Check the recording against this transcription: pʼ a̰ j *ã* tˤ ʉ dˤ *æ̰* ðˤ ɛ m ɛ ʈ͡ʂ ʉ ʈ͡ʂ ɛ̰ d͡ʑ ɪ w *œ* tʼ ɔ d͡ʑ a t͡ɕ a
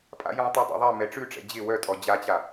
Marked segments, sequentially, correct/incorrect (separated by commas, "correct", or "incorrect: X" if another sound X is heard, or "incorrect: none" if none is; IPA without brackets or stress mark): correct, incorrect: a̰, correct